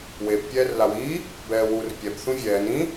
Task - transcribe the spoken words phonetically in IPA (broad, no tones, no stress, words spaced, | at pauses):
web pʲɛːrlawiː | bɛːwur pʲɛp θũvʲɛːn ĩ